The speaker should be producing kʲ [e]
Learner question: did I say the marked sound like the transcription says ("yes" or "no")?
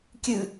no